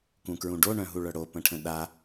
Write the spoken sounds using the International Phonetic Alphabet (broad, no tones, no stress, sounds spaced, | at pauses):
k ũ k ɹ ũ ɖ o ɳ œ̃ ɦ u ɭ œ ɽ o p ə̃ ʈʰ ə̃ ɗ a